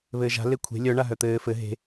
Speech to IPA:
β ɘː ʒ a̤ l e kʷʰ e̤ lʲ œ ɳ a ɦ œ t̪ ɘː f ɘ ɦ e̤

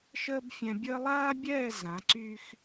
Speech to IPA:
ʃ əː˦ b fʲ ɛ̃˧ bʲ əː˦ lˠ aː˦ bʲ ɛː˦˨ z ã˨˦ ǀ y˦ x

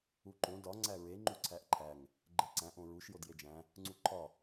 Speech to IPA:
u ǃ õ d ɒ ŋ͡ǀ æ ɹ e ŋ͡ǃ u ǀʰ æ ʔ ǃʰ æ ŋ | ɡ͡ǃ e ǀ æ̃ ʔ õ ɹ u ʃ j o d j e d͡ʒ æ̃ | ŋ͡ǀ u ǃʰ ɒ

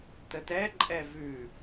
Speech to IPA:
t ə t ɛ ǃʼ ɛ v ʉ

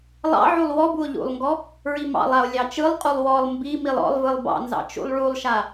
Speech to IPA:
lˠ ɑ̰ ʕ u lˠ w ɔ b u o̯ ʎ ṵ lˠ ŋ ɡ ɔ | ɹ i m ɑ̰ lˠ a o̯ lʲ ɑ t͡ʃ ɯ lˠ qʼ u lˠ w ɔ lˠ m b i m i lˠ ɔ̰ lˠ v ɯ lˠ b ɑ̰ n z ɑ̰ t͡ʃ ṵ lˠ ɭ u lˠ ʃ a

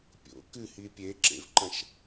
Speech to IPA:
pʲ o̰ k ɨ h i pʲ e ǁ ḛ v ǃ ɐ̃ ʃ

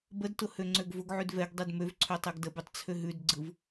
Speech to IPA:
b ə d t ʊ h ø ŋ͡ǀ ø ɡ v ʊ ɡ ʕ ʉ d v ɛ ɡ dˤ ɛ d m ø v ǀʰ ø tˤ ɛ ɡ d ə b ʉ tˤ t͡sʰ ø ɦ ʉ d ɡ͡ǀ ɯ v

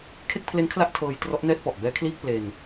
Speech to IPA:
kʰ e˥˩ k̚ pʰ l e˦˥ n kʰ l a˦˥ ʔ tʰ ɤː˧ j t r ɔ˦˥ ʔ n ɛː˥˩ t̚ p ɔ˨˩ ʔ b ɛː˦˥ kʰ l iː˥˩ k̚ p l e˧ n

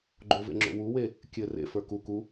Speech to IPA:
ɡ͡ǃ o v ḛ ŋ͡ǁ o̰ w u w e | kʲ ɘ r ḛ f ə˞ k u k u

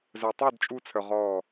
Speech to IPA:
z œ˨ tˤ o˦˨ d t͡ʃʼ u˧ t͡sʰ œ˨ ʁ ɔ˦˨

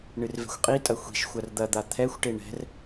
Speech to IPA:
ɳ ɨ r v ɛ̤ xʷ qʼ i tʼ ɐ xʷ i̤ ʃ xʷ ɐ r d̪ ɐ d̪ a t̪ʰ ɛ xʷ ʈ e ɳ ɛ̤ r

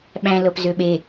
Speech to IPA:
ɓ æ̃ l ɤ p z ø ɓ e

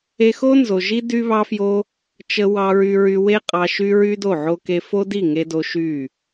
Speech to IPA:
e˧ x o˦ n z o˨ ʒ i˦ d y˦ β ɑ˦ f j o˦ | t͡ʃ ə˧ w ɑ˧ ɹ y˧ ɹ y˧ w e˦ qʼ ɑ˧ ʃ y˦ ɹ y˦ d o˦˨ ʕ o˦ k e˦ f o˦ d i˦˨ ŋ e˧ d o˧ ʃ y˦˨

